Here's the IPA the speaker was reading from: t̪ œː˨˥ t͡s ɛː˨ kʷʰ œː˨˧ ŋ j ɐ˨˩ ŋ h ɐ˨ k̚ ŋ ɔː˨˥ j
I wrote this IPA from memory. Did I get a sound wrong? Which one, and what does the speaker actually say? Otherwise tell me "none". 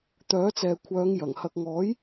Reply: none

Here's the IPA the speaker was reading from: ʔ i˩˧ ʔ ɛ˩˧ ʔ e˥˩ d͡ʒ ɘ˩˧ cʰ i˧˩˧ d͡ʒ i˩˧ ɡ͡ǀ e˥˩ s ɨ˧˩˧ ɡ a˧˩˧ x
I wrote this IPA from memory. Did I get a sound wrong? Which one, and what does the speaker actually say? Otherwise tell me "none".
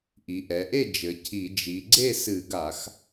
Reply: none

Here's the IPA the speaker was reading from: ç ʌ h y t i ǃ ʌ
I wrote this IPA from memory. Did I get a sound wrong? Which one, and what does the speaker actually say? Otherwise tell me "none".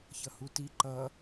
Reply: y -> u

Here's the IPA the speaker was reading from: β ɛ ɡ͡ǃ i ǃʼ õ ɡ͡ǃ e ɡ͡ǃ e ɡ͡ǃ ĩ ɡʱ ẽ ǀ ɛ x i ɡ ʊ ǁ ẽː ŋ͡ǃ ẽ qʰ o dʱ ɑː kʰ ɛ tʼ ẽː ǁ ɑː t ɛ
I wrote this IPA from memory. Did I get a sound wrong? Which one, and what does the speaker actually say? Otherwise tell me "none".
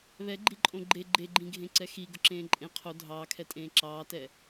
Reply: ŋ͡ǃ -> ǃʼ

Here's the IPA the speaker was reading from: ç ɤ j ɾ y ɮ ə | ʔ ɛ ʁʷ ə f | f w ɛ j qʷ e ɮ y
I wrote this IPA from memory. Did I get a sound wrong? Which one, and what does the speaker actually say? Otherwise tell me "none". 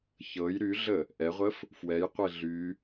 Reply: none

